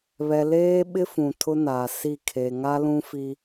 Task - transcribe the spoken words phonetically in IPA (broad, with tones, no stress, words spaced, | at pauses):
βɛ˨leː˦ɓɪ˦fũ˨ tʰʊ˦na˨ si˦˨ kʰe˨ŋa˦lũ˦fi˦